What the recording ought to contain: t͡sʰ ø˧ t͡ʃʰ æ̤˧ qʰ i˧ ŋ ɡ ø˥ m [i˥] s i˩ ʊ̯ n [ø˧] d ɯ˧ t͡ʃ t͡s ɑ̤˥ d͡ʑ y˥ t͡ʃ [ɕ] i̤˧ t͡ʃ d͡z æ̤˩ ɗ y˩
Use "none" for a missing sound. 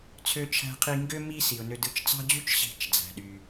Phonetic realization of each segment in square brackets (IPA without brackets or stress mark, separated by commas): i˥, ø˧, ɕ